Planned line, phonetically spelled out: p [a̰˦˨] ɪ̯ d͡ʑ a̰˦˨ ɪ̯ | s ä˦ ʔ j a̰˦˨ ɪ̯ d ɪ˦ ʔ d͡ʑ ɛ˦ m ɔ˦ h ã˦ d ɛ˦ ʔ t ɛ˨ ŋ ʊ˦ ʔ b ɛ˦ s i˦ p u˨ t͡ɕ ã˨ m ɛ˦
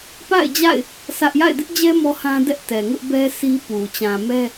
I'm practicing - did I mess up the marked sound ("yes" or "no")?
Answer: no